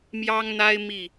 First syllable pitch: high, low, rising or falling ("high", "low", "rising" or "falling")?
high